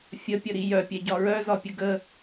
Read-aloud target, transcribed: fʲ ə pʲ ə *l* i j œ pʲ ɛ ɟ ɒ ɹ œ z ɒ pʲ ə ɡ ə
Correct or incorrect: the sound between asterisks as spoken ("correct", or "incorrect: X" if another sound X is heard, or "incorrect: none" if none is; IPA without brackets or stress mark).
incorrect: ɾ